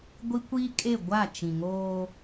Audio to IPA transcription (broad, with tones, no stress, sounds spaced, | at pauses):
ɡʷ i˦ kʷ iː˦ kʼ e˦˨ ɡʷ a˦˨ t͡ʃ ĩ˨ ŋ oː˦